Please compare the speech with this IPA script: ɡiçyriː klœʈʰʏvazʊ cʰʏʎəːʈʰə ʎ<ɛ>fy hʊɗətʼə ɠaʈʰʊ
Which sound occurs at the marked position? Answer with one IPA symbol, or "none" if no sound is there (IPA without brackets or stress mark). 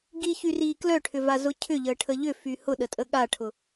ʏ